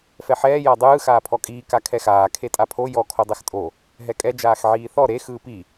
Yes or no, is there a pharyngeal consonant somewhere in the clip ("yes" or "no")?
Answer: yes